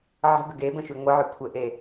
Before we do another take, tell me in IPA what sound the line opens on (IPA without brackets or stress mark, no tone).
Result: ʕ